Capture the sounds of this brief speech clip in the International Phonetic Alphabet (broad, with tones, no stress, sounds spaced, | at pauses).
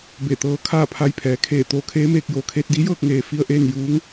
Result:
b e˧˩ t̪ ɤː˧˥ kʰ aː˥˨ pʰ a˧ j pʰ ɛː˩˧ kʰ eː˧˩ t̪ oː˧ kʰ eː˧˥ m eː˧ k̚ j oː˩ kʰ eː˧ t̚ d i˧˥ j ɤː˥˨ k̚ ŋ eː˧ f i˧ ə̯ ʔ eː˥˨ n j uː˧˥ ŋ